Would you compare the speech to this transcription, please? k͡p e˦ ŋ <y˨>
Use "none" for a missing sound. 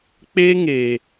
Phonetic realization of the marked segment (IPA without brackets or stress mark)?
e˨